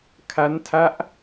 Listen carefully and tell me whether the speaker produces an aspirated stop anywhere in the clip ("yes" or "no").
yes